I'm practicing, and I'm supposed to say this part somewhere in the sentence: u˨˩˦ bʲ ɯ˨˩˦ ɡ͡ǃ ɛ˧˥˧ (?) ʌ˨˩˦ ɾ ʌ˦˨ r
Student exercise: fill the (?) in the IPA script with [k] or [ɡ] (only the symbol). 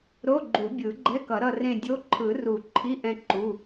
k